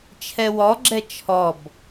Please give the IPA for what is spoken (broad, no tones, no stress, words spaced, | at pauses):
t͡ʃʰɛwɔɡ͡ǁɛ t͡ʃʰɔb